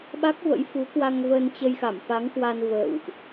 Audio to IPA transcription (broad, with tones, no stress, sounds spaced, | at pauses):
ɓ a˦˥ k̚ v ə̰˧˥ j f u˨˦ k w a˧ ŋ v ə˧ n t͡ɕ ə˧ j x a˧˩ m f a˨˦ ŋ k w a˧ n v ə̰ː˧˨ w ʔ